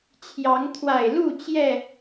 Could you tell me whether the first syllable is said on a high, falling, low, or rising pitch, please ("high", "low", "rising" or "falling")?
rising